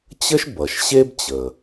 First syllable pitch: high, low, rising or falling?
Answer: high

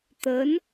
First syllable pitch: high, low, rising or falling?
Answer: rising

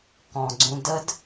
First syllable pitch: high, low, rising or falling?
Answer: low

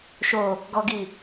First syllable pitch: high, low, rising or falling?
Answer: low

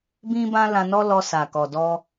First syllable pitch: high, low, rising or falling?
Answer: high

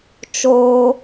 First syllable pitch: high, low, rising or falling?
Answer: low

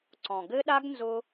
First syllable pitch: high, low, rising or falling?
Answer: low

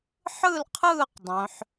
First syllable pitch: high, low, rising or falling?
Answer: falling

